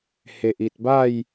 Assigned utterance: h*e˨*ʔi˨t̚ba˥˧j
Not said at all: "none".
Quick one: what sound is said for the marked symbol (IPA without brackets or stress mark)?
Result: e˨